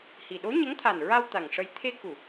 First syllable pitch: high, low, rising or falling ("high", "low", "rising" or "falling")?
low